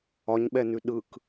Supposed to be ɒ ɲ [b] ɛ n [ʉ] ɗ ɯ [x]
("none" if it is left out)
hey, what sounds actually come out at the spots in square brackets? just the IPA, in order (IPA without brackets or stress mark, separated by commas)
ɓ, ʉ, k